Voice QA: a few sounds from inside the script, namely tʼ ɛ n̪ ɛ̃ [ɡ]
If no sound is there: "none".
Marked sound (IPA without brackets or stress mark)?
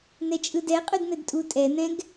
ɡ